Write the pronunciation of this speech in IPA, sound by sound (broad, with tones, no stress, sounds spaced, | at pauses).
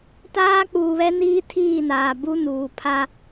t aː˦ k͡p uː˨ β ɛ˦ n iː˦ tʰ iː˦˨ n aː˨ b u˦ n uː˨ pʰ a˦